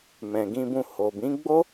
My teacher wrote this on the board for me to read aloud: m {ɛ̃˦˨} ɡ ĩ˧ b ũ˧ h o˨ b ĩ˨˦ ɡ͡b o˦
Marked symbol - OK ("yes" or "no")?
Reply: no